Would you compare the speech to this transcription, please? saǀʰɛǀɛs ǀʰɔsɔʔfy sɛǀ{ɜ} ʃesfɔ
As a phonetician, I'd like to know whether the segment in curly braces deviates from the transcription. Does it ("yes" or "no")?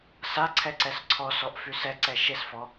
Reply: yes